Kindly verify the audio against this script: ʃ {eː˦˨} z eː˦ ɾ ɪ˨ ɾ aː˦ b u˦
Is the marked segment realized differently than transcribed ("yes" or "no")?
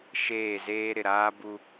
no